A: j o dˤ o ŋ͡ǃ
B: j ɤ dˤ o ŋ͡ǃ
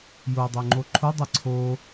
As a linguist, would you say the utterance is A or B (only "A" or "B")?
A